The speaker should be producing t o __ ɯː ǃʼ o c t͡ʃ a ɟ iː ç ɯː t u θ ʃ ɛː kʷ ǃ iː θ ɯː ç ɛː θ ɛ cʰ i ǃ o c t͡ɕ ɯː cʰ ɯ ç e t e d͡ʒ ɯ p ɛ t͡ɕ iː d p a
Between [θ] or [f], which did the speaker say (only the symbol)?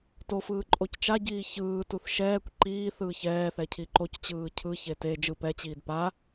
f